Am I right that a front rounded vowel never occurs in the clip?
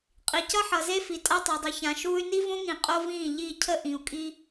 no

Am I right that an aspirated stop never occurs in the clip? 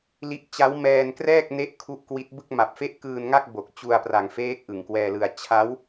no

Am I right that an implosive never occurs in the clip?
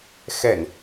yes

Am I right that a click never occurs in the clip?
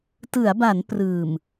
yes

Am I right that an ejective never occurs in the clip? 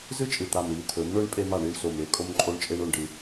no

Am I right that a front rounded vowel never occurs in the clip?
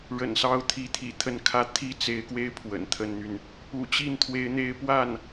no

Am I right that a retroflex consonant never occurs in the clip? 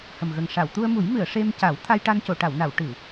no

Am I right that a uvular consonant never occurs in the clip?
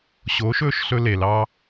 yes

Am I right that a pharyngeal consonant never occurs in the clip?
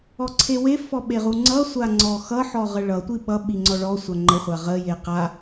no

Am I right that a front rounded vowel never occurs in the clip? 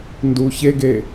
yes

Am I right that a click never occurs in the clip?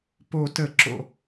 no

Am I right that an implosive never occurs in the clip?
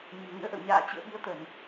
no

